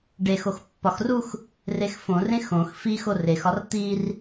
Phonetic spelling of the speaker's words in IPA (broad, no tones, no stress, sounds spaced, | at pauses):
ɖ e x o x pː ɒ x r u x | r e x f õ r ẽ x õ x f i x o r e x ɒ r t̪ i r